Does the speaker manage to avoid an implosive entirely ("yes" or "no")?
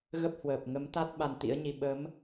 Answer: no